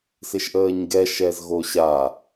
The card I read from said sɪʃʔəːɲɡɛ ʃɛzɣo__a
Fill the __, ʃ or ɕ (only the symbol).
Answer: ɕ